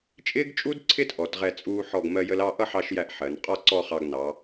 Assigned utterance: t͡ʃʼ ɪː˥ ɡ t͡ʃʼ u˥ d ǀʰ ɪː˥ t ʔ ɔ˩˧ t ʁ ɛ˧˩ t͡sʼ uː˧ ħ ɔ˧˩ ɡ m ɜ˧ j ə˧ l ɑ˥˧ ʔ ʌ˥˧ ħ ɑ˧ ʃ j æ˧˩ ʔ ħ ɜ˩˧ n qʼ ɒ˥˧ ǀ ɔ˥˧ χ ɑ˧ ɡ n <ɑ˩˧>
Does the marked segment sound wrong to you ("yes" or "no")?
no